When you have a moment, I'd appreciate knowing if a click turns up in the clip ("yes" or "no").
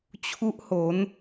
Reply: no